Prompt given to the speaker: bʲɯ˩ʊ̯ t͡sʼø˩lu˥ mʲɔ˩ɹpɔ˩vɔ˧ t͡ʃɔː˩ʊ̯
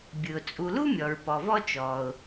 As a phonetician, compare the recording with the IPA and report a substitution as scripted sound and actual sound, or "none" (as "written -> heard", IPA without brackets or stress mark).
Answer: ø˩ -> u˩